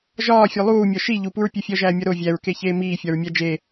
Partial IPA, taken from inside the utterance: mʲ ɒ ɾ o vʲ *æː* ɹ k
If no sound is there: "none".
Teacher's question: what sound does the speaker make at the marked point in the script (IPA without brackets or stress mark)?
æ